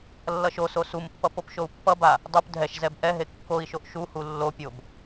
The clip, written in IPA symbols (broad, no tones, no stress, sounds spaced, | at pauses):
lː ʌ ʃ o s o s u m pː ʌ p o p ʃ o u̯ pː ʌ b a | dˤ u p dʱ ɛ ʃ z ɛ b ʔ ɛ ɦ e kː o i̯ ʃ o ʔ ʃ u h u lː o pʲ o b